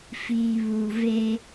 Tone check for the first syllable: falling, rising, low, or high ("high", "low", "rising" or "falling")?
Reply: low